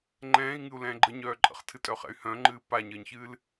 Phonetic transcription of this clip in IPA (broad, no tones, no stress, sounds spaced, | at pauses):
ŋ͡ǃ ɛ̃ː i̯ ŋ ɨ u̯ l ɛ̃ː ɡ͡ǃ ə ɲ œː ǃʼ ə̰ χ tʰ ɨ tʼ œ χ ɛ̰ y̯ h œ̃ ŋ͡ǃ ɨː p a ɲ əː ɲ ç ɨː l